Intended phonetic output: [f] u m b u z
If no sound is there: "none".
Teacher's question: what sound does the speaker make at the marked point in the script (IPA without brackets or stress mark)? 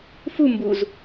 f